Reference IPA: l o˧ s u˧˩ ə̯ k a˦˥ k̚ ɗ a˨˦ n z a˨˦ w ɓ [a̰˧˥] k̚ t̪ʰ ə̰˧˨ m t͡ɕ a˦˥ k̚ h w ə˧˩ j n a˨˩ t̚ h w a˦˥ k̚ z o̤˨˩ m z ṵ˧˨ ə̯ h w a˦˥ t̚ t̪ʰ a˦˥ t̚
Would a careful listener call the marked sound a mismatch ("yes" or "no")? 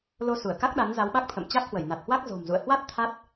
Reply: yes